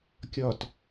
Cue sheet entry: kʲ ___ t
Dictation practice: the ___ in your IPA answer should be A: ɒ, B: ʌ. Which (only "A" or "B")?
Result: A